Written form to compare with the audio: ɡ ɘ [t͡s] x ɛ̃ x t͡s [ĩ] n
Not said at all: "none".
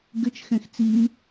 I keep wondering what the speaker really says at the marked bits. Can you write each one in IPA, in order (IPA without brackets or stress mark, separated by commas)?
t͡ʃ, i